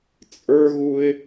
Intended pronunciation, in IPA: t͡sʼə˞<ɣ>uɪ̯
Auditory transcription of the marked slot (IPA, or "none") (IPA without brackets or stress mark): ɣ